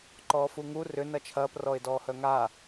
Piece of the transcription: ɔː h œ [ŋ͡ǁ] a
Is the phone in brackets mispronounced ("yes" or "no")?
yes